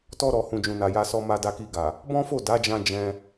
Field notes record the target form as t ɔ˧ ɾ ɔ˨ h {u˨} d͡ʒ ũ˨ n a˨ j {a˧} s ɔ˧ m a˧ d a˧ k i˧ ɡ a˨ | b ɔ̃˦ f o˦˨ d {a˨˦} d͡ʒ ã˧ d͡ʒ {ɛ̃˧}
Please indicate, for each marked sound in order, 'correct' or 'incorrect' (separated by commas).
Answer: incorrect, correct, correct, correct